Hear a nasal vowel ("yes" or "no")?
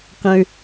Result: yes